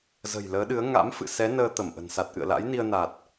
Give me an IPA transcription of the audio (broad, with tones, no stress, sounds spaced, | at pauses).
z ə̤˨˩ j l əː˨˦ ɗ ɨ˨˦ ə̯ ŋ a̰˧˥ m f ɨ̰˧˨ s ɛ˨˦ n əː˧ t̪ ə˧˩ m ʔ ə̤˨˩ n s a˨˩ t̚ ʔ ɨ̰˧˨ ə̯ l a̰˧˥ j n i˧ ə̯ n a˨˩ t̚